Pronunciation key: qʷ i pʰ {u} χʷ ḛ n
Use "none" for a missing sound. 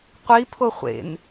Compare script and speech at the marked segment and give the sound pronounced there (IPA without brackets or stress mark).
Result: o